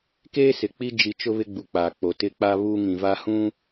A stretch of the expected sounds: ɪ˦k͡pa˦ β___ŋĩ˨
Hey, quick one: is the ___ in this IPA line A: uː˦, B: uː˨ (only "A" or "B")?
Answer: A